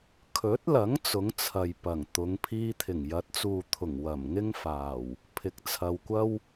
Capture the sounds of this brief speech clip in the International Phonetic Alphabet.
kʰɵ˨˥t̚lɐ˨˥ŋ t͡sʊ˨˥ŋt͡sʰɐ˨j pɐ˨˩ŋt̪ʊ˨˧ŋ pʰiː˧t̪ʰɪ˨˩ŋjɐ˨˥t̚t͡suː˨ t̪ʰʊ˨˩ŋwɐ˨˩m ŋɪ˥ŋfaː˨˩w | pʰɪ˨˥k̚t͡sʰɐ˨wkʷɐ˥w

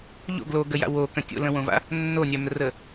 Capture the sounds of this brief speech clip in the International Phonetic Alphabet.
ʎo̰ ɡloɡəja̰ wokə̃ tʲo̰lə̃wõva̰ | nːonʲœmrə

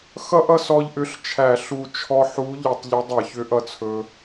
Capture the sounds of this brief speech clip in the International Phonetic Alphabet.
xʌ˥ʔ ʌ˥sɔ˧ʎʔʏ˨˥ɬt͡ʃʰæ˧˩˧ ɬu˧˩ t͡ʃʰɔ˧ħu˨˥ ʎɵ˧˩˧tˤʎʏ˨˥ dˤʌ˧˩˧çʏ˨˥ ʔʌ˧t͡sʰɵ˧

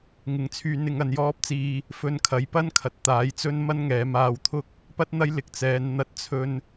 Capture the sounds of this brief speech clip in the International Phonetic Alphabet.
ŋɪ˨˧ŋt͡sʰyː˨˧nɪ˨˧ŋ ɐ˨njɔː˧p̚t͡siː˨ | fɵ˧nkʰɐ˨jpɐ˥nkʰɐ˨t̚ t̪aː˨˥jt͡sɵ˥n mɐ˥nŋɛː˨˧ maː˧wt̪ʰʊ˥k̚ | pɐ˥t̚n̪ɐ˥j lɪ˨k̚t͡sɛː˨˧n n̪ɐ˥t̚t͡sʰɵ˥n

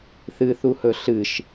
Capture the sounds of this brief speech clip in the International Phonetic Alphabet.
θɨθuhɵ ɬɨʃ

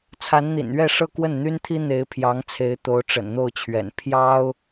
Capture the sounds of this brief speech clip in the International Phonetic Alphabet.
t͡sʰa˧˥nn̪ḭ˨˩nɥɛ˥˧ ʂɤ˥˧kwə˥˩nn̪y˥nt̪ʰi˥ n̪e˧˥ɪ̯pʰjɑ˧˥ŋt͡sʰe˧˥ɪ̯ t̪o˧˥ʊ̯ʈ͡ʂə̰˨˩nn̪o˥˩ʊ̯t͡ɕʰɥɛ̰˨˩n pʰjɑ˥ʊ̯

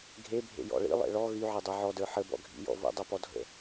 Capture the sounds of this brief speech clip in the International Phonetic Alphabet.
ɡʱe bʱḛjɔ̰ɭḭlˠḛ ɭɔ ɣyʕɤ dˤə˞ʕɔdə˞ ħəbɔ̰ɡʱḭ jɔ̰və̰ dˤɤpɔdʱə̰

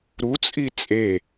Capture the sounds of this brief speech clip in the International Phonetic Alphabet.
ɾut͡sʼi t͡sʼe

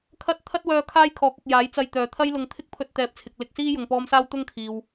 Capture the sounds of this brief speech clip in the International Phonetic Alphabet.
kʰɐ˥t̚ t̪ʰɐ˥t̚wœː˧ kʰaː˥jkʰɔː˨˥k̚ɪ˨k̚ jaː˨˥j t͡sɐ˧j t̪œː˨t̪ʰɐ˥jlʊ˧ŋ t̪ʰɪ˥k̚pʰɵ˧t̚t̪ɛː˨p̚t͡sʰɪ˨k̚ lɪ˧k̚siː˥jʊ˨ŋpɔː˧m saː˥wt̪ʊ˥ŋkʰiː˨w

